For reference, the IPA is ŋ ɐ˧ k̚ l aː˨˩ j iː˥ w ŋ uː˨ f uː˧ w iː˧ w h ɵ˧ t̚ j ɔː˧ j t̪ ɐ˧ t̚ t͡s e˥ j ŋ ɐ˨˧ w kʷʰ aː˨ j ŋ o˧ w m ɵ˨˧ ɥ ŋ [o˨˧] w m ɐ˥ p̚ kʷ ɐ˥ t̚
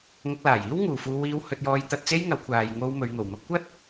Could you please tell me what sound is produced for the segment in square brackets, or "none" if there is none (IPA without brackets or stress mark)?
o˨˩